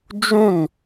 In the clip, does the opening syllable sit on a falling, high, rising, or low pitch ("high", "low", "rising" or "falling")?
falling